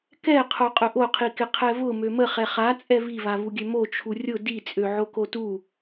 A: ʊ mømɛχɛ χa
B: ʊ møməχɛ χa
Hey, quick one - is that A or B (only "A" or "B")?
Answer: B